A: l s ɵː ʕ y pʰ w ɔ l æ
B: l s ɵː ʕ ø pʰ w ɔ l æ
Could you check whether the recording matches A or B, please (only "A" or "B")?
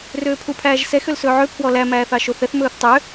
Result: B